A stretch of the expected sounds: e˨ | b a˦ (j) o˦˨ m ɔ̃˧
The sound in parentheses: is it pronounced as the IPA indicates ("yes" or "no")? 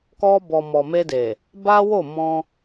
no